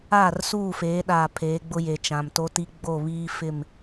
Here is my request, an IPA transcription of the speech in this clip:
aː˦˨rsuː˦˨feː˨˦ɗaː˨ pʰeː˨˦ɡ͡bʊ˦je˨ t͡ʃã˨mto˦ti˦ ɡ͡bo˦˨βiː˦fɪ˦˨m

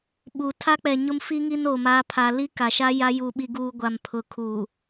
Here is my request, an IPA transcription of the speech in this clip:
ɓu˨ tʰa˦k͡pɛ˨ ɲʊ˦mfi˦ŋi˦n o˨ma˨˦pʰa˨ li˦ka˨ʃa˦ ja˦ ju˨ɓi˨ɡuː˨ ɡʷa˨mpʰʊ˨kʰuː˨

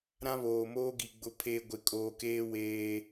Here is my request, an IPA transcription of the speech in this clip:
ɾã˦βoː˨moː˦ɡi˨ ɡ͡bʊ˨pʰe˨ ɡʷɪ˨kʼoː˨keː˦ weː˦

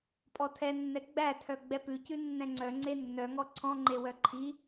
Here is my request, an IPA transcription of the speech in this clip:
pʼɔtʰɛnːɛ ɡ͡bætʰœ ɡ͡bɛpʉcʉ nːɛ̃ŋ͡ǀœ ŋ͡ǀenːœ ŋɔǀʰɔ̃ŋ͡ǃewœ ǃʰi

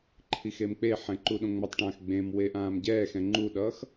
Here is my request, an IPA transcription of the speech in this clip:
ǃʰixemk͡peħɛ̃ ǃuɗõŋ͡mʌtˤʈãːx ɡ͡bẽmwe ʔãːmɟɛːxɛ̃ ŋ͡ǃuɗʌːx

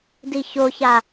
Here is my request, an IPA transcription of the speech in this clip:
diçoça

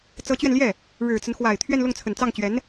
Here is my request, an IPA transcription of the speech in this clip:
t͡sɤ˧˥t͡ɕɥɛ˧nljɛ˥˩ | ɻɻ̩˨˩t͡sə˦nxwa˨˩ɪ̯ t̪ʰɥɛ˥˧nlʊ˥˩ŋt͡sʰə˨˩n t͡sɑ˥˩ŋt͡ɕɥɛ˧˥n

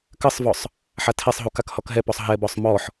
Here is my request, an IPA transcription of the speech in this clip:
kɘsˤvɔsˤ | ħatʰɛsˤɦuk akhɔkɦɛpɔsˤ ɦɛbɔsˤ mɔħ

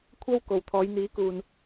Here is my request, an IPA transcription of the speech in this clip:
kʷʰɐ˥w ko˨wt̪ʰɔː˨˧jn̪iː˨˥kuː˨n

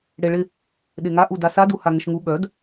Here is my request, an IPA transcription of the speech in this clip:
ɽeɭɪ | ɗeŋaʔu dasaduha ŋəʃŋu ɠœd

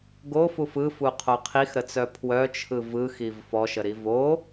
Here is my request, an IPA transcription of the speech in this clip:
ɡofuf ɯfuqʰo qʰixɾət͡sœ pʰwœt͡ʃʰɯ vɯxiv fɔʃəɾi vo

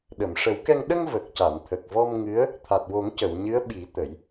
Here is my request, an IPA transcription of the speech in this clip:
ɗə˨˩˨mʂə˨˩˦wkɛ˧ŋ ɗə˧ŋ və˨˩k̚ca˨˩˨nt̪ʰə˨˩k̚vɔ˧m ŋɨ˧˥ə̯ | t̪ʰa˨˩t̚wo˨˩˦ŋcə˨˩˨w ɲɨ˧˥ə̯ɓi˨˩˦ t̪ə˨˩˦j

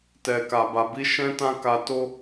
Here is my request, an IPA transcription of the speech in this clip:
tɛ˨ka˨ ba˨bi˨˦ʃɛ̃˦ tã˦ka˧to˦

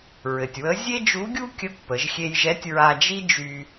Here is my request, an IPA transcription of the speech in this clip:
ɹɘ˩tʲwə˧˥ zʲe˥d͡ʒu˧˥ɡʲu˥ kʲə˧˥kʷpə˩˧ʒxʲe˧jʒɛ˧˥tʲ ɹa˧d͡ʒi˥d͡ʒy˧

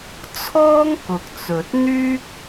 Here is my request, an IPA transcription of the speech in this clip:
t͡sʰɔː˥ŋkʊ˨k̚t͡sɵ˨t̚n̪yː˥k̚

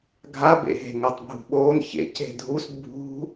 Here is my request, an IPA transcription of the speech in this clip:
ɡʱabḛɦe̤ ŋotˤbʱṳɓoːn çḛc e̤dʱus bʱṳ

